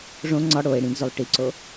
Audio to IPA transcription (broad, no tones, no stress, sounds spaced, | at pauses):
ʐ õ ŋ͡ǀ ɒ ɽ o e̯ ɽ ĩ ɡ z o lˠ ʈ i ǀ o